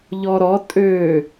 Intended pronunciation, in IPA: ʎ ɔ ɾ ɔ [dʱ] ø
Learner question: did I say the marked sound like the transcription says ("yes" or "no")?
no